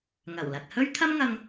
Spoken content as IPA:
ŋɐ˨˩w lɐ˨t̚hɵ˥ɥ t̪ʰɐ˥mŋɐ˧ŋ

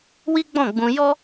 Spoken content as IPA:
wi˦ɡ͡bɔ̃˦˨ɡ͡bũ˧ jɔ˦

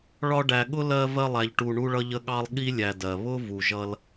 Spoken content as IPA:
ɭɒ˦ɖæ˨ɠʊ˥ lɜ˦ vɜ˦lˠæ˨ʎʈu˨ ɳu˦ɭʌ˦ʎə˦ɠɑ˦lˠ ɠi˥lʲæ˨dɜ˩ βʊ˥ vu˩ʒʌ˦l

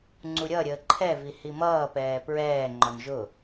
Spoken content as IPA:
ŋ͡ǀuɾʲʌɾʲəː ǃʰɛvi himʌːpɛː pɹɛːŋ͡ǃɔn ʒʊ

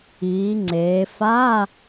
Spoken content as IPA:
iː˩˧ ŋ͡ǀeː˩˧ fa˧˥˧

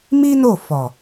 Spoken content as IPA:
mi˦ no˦˨fɔ˨

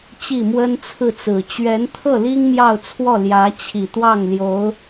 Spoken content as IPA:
t͡ɕi˥˩mwə˥nt͡sʰɹ̩˥˩t͡sɹ̩˨˩ t͡ɕɥɛ˧˥nt̪ʰɤ˥˩li˥ŋ mjɑ˥˧ʊ̯t͡sʰwɔ˥˩ljä˧˥ t͡ɕʰi˨˩t̪wɑ˥˩ŋljo˧˥ʊ̯

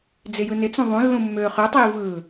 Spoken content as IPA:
d͡zɪjɯnɪt͡sũ ðˤũlːũ mːøːχøtˤiː vɯ

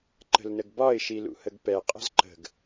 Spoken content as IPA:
ǃə̤lnəɡbɒɪ̯ ʃilṵhəɡpɛ qʼə̤zǃə̤ɡ

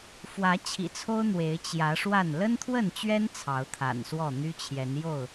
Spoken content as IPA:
fwä˨˦t͡ɕʰḭ˨˩t͡sʰo˦ʊ̯ n̪we˨˦ɪ̯t͡ɕjä˨˦ʂwa˥˨n lə˦nt̪ʰwə˥˨nt͡ɕɥɛ˦n t͡sʰɑ˨˦ʊ̯t̪ʰa̰˨˩nswɔ˥˨ n̪y˦t͡ɕʰjɛ˨˦n jo˥˨ʊ̯

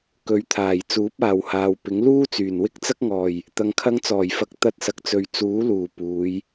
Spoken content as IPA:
kɵ˨˥ɥt̪ʰaː˨˩j t͡suː˨˥p̚aː˨whaː˨wpɪ˨˥ŋ luː˥t͡syː˨˩nwɪ˥k̚ t͡sɐ˥k̚ŋɔː˨˩j | t̪ɐ˨ŋkʰɐ˧ŋt͡sɔː˨˩jfɐ˨˥k̚ t̪ɐ˧t̚sɐ˨k̚t͡sɵ˨ɥ t͡suː˨˥luː˨˩ puː˨˧j

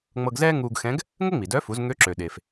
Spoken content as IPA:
ŋ͡mɤ˧ɡzɛː˥ ŋuː˧ɡ xɛ̃˧˥ɡ | ŋə˥ŋ͡mi˩dœ˧˥fu˩˧z ŋø˧˥ǁø˩ ɗe˩f

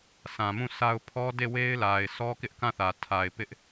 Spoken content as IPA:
sã˨mũ˦˨sʰa˦ʊ̯ pʰɔ˦de˦˨we˦ɪ̯la˨ɪ̯ sɔ˦kɪ˦ʔkã˦˨θä˨ tʰa˨ɪ̯pɪ˦ʔ

